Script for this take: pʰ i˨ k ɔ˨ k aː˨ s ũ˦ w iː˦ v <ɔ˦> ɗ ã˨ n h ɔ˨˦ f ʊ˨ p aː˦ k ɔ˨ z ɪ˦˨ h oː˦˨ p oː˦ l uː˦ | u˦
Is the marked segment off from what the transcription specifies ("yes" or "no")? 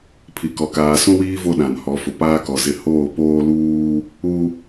yes